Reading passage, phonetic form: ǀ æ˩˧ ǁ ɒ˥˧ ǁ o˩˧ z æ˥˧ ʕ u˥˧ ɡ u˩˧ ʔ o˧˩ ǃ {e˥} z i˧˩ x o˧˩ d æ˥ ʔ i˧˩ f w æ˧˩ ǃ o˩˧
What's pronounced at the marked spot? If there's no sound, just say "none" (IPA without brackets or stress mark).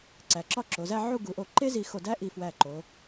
e˥